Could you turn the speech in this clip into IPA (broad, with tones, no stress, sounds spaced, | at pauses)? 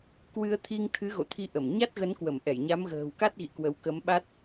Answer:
k w ɨ˧ ə̯ t̪ʰ i˧ ŋ t̪ʰ ɨ˨˦ ɣ o̰˧˨ t̪ʰ i˧ ʔ ə˧˩ m ɲ a˦˥ t̚ ɣ ə˨˦ n k w ə˧˩ m ʔ ɛ˧˩ j ɲ a˨˦ m ɣ ə̤ː˨˩ w k a˦˥ t̚ ɣ ḭ˧˨ k w ə˨˦ w k ə˨˦ m ɓ a˦˥ t̚